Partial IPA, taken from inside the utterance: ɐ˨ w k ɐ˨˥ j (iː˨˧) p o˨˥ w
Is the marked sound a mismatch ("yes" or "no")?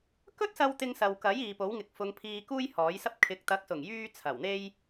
yes